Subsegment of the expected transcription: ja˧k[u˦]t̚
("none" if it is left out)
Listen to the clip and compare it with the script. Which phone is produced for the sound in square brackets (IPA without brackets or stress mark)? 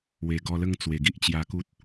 u˦